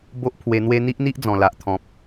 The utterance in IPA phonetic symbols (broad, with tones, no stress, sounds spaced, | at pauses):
b o˦ ʔ pʰ w e˧ n̪ w e˦ n̪ i˦ ʔ n̪ i˦ ʔ d͡z ɔ̃˨˩ l a˨ ʔ t̪ʰ ɔ̃˨ p̚